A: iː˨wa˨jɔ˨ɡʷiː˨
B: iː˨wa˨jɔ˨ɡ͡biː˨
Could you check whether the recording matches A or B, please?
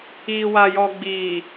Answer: B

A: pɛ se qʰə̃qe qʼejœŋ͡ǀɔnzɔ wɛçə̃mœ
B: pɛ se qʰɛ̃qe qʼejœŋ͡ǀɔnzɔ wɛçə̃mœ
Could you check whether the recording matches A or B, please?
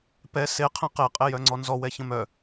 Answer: B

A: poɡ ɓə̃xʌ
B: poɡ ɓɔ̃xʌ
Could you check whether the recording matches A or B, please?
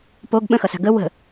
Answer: A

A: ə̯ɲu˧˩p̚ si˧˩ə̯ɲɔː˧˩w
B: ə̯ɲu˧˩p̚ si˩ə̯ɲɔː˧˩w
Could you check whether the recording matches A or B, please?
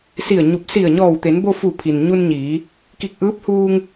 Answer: A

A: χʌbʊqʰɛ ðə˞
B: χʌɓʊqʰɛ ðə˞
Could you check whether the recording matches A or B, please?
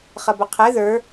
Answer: A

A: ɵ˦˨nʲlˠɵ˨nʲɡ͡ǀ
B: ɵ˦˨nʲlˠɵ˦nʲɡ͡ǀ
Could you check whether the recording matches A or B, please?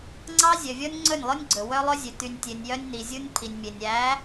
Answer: B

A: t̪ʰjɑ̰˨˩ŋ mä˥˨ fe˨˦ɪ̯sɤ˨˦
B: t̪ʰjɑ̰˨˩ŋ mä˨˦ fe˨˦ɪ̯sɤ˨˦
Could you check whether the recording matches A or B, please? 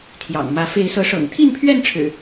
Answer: B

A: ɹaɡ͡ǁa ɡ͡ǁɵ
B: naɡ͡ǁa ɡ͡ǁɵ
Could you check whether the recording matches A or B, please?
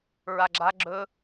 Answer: A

